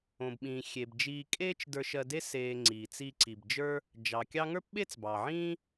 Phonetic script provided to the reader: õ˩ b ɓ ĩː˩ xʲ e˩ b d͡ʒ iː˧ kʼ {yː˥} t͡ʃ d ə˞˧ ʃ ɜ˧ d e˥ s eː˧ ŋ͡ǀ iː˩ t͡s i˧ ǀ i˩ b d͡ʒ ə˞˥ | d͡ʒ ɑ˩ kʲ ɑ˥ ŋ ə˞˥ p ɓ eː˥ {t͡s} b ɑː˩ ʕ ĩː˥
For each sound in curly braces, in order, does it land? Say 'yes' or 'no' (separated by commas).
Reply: no, yes